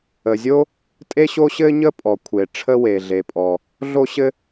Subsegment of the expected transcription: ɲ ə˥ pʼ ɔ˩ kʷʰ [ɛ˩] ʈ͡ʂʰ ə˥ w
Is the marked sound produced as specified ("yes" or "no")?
no